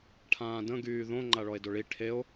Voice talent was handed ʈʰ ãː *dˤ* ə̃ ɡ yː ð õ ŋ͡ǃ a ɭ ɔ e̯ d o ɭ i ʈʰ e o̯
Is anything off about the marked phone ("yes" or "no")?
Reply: yes